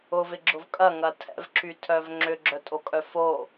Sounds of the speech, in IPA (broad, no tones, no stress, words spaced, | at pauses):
ʊvɪɡ͡ǁʊv kʼɐŋɐ tʰɛ̰vǁytʰœv ŋ͡ǁʏɡ͡ǁœtʼokʼœ fo